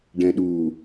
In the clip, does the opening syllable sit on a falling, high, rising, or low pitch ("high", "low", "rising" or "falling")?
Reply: low